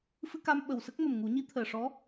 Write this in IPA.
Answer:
f ɨ˧ k a˧ m ɓ ə˨˩ w s ə˦˥ k̚ m ə˨˩ m ŋ u˨˩˦ ɲ i˧˥ t̪ʰ əː˨˩ ʂ ɔ˧˥

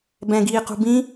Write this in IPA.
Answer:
b ɛ̃ ɡ iː q ṳ b ĩ

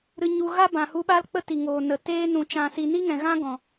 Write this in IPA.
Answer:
ɾ ɨ˧ ɲ u˧ ɣ aː˦ b ã˨ h u˧ ɓ a˦ l k͡p ə˦ t i˨ ŋ oː˨ n ə˨ t eː˦ n ũ˧ t͡ʃ ã˧ s i˧ n i˦ ŋ ɛ̃˨ ɣ ã˦ ɡ ɔ̃˨

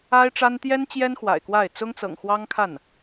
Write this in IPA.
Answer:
a˥ ɪ̯ ʈ͡ʂ a˥ n t̪ j ɛ˥ n t͡ɕ j ɛ˥ n x w a̰˨˩ ɪ̯ k w a˥˩ ɪ̯ t͡s ʊ˥ ŋ t͡s ɤ̰˨˩ ŋ x w ɑ˥ ŋ kʰ a˥˩ n

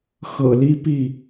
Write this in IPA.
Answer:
x ɤ̰˨˩ l i˦ p i˥˨

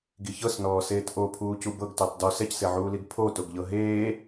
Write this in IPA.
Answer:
ɡ i ç ɤ s n ɔː s eː t ʔ o pʰ uː c u b ɤ ɡ t u tˤ d ɔ s ɛ c s e ʕ uː l i ɡ pʰ o t o ɡ ʎ ɤ ɦ eː

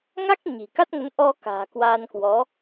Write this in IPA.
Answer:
ŋ a˦˥ k̚ ɲ i̤˨˩ k a˦˥ t̚ ŋ ə˨˦ n ʔ ɔ˧ k a̤ː˨˩ k w aː˧ n k w ɔ˨˦

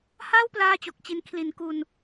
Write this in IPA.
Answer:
h a˥˩ w p l aː˥˩ t͡ɕ o˨˩ k̚ t͡ɕ i˧ n kʰ l i˩˦ n k u˧ n

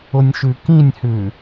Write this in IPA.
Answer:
ʊ nʲ ʃ ʉ k ĩ nʲ h ʉ

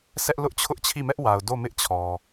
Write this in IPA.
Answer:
s ɛ˦ ʔ l ʊ˦ ʔ t͡ɕʰ ʊ˦ ʔ t͡ɕʰ i˦˨ m ɛ˦ ʔ w a˨ ʊ̯ d o˦˨ m ɪ˦ ʔ t͡ɕʰ ɔ˨

